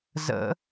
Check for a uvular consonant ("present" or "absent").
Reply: absent